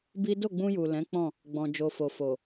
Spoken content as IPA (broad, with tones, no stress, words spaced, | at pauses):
bi˦ do˦˨ɡ͡bũ˧ju˨ lɛ̃˨˦k͡pɔ̃˦˨ | ɡ͡bɔ̃˨ d͡ʒo˨fo˨fo˨